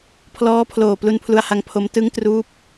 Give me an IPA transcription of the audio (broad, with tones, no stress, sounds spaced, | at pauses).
pʰ l ɔː˦˥ pʰ l oː˨˩ p l u˧ n pʰ l u˧ a̯ h a˧ ŋ pʰ o˦˥ m t ɯ˦˥ ŋ t r uː˦˥ p̚